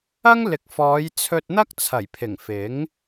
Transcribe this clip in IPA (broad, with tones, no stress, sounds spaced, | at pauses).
ɐ˥ ŋ l ɪ˨˥ k̚ f ɔː˨˧ j t͡sʰ ɵ˧ t̚ n̪ ɐ˥ k̚ t͡sʰ ɐ˨˩ j pʰ ɪ˨˩ ŋ f ɪ˨˥ ŋ